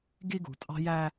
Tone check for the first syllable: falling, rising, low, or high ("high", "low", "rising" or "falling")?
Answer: high